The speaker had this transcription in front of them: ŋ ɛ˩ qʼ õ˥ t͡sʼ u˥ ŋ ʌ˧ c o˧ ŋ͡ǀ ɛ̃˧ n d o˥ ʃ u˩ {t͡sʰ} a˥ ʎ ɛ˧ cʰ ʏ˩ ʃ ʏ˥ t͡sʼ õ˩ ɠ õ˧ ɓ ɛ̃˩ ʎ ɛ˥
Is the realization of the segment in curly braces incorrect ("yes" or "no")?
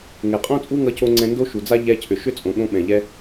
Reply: yes